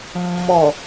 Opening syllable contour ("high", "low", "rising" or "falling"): low